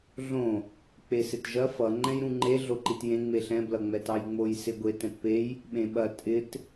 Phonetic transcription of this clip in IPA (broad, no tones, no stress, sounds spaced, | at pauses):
ɮ õ | k͡p e s ɪ t ʒ ɐ f ʌ ŋ͡ǃ ɛ̃ j ɾ ũ ŋ͡ǃ e ɮ o ǃ i t j ẽ ŋ͡m e ɬ ɛ̃ b l ʌ ŋ͡m ɛ t ɑ j ŋ͡m o j s ɪ ɡʷ e t ɛ̃ t p e j | ɓ ẽ ɓ ɐ tʼ ɪ t